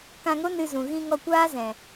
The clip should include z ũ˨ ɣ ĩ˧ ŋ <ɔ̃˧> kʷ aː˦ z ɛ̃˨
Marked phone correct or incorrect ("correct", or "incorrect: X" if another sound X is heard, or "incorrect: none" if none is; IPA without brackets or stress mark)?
incorrect: ɔ˧